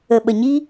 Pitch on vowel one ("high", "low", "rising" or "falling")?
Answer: low